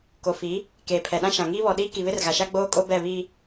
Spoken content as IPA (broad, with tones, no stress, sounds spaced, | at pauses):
k o˨ f i˨˦ | k eː˨ pʰ ɛ˨ ɗ ã˦ ʃ ã˨ ŋ iː˦ β ɔ˨ ɗ iː˦ k i˨ β ɪ˦ r ɣ a˨ ʃ a˦ ɡ͡b oː˦ kʼ o˦ b ɛ˦˨ β i˨